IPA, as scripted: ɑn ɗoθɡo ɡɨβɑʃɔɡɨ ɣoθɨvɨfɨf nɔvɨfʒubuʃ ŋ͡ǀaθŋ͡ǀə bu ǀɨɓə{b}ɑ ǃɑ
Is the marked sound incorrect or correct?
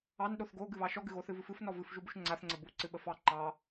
incorrect